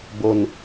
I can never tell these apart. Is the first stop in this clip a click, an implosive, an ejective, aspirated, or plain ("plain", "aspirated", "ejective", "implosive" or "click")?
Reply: plain